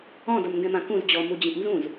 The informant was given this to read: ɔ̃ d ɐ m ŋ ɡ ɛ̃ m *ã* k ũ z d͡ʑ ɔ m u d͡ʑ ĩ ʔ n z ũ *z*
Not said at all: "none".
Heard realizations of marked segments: ã, z

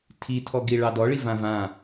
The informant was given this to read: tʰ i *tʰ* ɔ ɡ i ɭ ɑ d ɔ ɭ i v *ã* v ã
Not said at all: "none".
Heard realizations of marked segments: tʰ, ã

